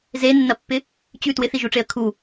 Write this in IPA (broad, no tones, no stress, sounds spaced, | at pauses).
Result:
z e nː ɐ pː ɪ | t͡ɕ ʉ t w ɪ θ i ʒ u ʈ͡ʂ e ə̯ kʰ u